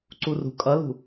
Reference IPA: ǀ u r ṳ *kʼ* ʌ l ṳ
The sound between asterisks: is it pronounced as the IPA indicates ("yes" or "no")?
yes